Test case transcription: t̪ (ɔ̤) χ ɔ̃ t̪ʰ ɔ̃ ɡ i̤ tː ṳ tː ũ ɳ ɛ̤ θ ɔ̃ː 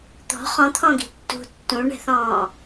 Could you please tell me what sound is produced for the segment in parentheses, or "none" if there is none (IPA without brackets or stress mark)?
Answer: ɔ̤